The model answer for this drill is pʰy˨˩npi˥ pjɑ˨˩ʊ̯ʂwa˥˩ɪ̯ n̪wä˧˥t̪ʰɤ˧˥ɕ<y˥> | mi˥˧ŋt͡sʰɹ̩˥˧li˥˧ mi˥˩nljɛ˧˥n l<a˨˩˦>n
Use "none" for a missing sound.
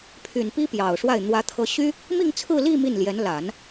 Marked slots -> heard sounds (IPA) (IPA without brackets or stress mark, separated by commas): y˥, a˨˩˦